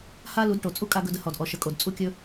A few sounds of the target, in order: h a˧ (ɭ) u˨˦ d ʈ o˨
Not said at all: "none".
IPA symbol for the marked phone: l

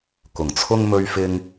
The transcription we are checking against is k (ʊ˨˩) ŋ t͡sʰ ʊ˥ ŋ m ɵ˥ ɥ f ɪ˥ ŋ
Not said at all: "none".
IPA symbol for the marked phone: ʊ˨˩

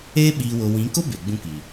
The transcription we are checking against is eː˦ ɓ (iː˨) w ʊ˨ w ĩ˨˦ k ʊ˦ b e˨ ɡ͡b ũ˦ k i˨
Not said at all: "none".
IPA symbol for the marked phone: iː˨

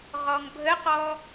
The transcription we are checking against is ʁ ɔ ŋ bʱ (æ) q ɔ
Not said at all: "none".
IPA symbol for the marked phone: ə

